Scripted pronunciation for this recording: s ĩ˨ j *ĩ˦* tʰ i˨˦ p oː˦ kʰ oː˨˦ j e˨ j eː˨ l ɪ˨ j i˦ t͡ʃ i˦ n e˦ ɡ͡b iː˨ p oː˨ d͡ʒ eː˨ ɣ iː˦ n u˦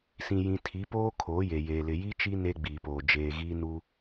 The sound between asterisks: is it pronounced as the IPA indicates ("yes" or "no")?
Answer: no